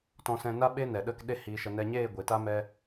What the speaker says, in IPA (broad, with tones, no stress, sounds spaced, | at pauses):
t ɔ̃˧ s ɛ̃˧ n a˦ ɓ e˦ n ɛ˨ ɗ ə˦˨ k ɗ e˦˨ h iː˨ ʃ ə˨ n ɛ˧ ɲ eː˦˨ ɡʷ e˨ t a˦ m ɛ˦